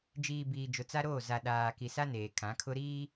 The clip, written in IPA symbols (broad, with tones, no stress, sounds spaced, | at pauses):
d͡ʒ iː˨ b iː˨ d͡ʒ ʊ˨ t͡s a˦ ɾ oː˦˨ z a˨ ɗ aː˨ k i˨ s a˦ n eː˨ kʰ ã˨˦ kʰ ʊ˦ ɾ iː˦